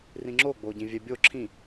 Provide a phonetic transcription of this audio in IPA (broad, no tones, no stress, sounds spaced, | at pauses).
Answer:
r ĩ ŋ͡ǁ o ɡ͡b o ɟ ĩ vʲ ɛ bʲ o ǁʰ ĩ